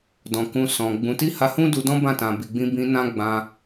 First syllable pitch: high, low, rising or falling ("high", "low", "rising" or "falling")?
low